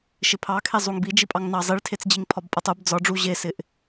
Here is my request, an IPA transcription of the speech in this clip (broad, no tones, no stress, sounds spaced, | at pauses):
ʃ ɪ pʰ ɑ kʰ e zˤ u ŋ b i d͡ʒ i pʼ ɑ ŋ n ɑ zˤ i ɭ tʰ e t͡s d͡ʑ i ŋ pʰ ɒ b pʼ ʌ tˤ u b d͡z ɒ ɖ͡ʐ u ʑ e s ɪ ʔ